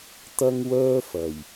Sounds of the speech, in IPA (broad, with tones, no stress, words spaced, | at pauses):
t̪ɐ˥ŋwœː˥ fɐ˨˩j